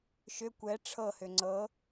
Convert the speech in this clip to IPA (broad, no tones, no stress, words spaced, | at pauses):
ʃʏ kʷɛ ʈ͡ʂʰɤhʏ ŋ͡ǀɤ